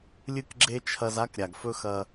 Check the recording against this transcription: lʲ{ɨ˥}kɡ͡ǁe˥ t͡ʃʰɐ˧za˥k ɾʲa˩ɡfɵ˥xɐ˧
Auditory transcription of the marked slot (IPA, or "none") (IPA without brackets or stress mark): ɨ˥